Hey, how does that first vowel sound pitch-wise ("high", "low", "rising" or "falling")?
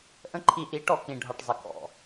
falling